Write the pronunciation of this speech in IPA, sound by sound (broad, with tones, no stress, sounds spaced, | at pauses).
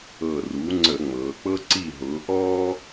ɤ˧˩ r u˩˥ ŋ͡ǀ ə˧˩˧ ŋ͡m ɤː˩˧ k͡p ɤ˦ ǀ i˧˩ ɦ ʊː˩˧ ʔ ɔː˦